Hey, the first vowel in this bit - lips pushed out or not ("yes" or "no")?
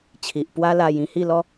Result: no